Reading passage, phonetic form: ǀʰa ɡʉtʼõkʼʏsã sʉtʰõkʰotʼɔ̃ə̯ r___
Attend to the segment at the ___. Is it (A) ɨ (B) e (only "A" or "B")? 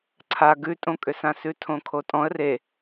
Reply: B